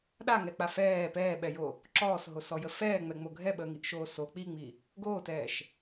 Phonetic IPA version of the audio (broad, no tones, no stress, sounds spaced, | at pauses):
ɗ a ŋ ɛ k͡p a f ɛː p ɛː ɓ ɛ j o | ǁ ɔː s ɦ o s ɔ j ə f ɛː ŋ͡m ɛ ŋ͡m o ɡʱ ɛ ɓ əː ŋ i ʔ ʃ oː s o k͡p i ŋ͡m i | ɡ oː t ɛː ʃ